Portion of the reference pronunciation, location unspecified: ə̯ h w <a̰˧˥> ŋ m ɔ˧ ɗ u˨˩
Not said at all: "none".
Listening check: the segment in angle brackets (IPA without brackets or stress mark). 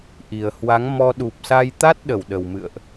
a˨˦